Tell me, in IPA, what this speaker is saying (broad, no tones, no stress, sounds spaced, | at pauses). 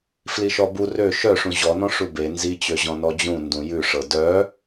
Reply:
f l i ʃ ɔ b u r ø ʃ œ ʂ ũ ʑ ɔ n ɔ̃ ʂ u b e n z i t͡ɕ ø ʑ ɔ̃ n ɔ d͡ʑ ũ n d ũ j ʉ ʂ ɤ d œ